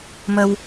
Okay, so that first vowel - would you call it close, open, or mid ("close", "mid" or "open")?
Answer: mid